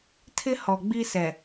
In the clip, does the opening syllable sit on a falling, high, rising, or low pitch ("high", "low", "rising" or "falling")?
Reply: high